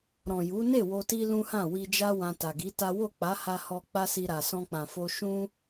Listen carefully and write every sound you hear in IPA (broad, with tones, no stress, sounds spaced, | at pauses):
ɾ ɔ̃˨ j u˨˦ n e˦˨ w o˧ t i˦ l ũ˦ h ã˦˨ w i˧ d͡ʒ a˦ w ã˧ t a˨ ɡ i˨˦ t a˦ w o˦˨ k͡p a˨˦ h a˧ h ɔ˧ k͡p a˦ s i˧ ɾ a˨ s ɔ̃˧ k͡p ã˨ f o˧ ʃ ũ˦